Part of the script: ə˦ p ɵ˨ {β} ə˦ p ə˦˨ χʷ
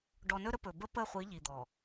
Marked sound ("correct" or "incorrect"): incorrect